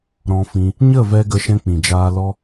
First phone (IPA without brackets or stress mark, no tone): ɾ